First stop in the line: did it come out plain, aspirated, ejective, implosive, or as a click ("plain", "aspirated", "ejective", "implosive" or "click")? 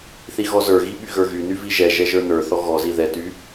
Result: implosive